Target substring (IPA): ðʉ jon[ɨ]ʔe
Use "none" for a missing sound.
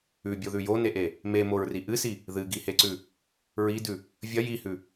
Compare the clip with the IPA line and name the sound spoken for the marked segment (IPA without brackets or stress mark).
e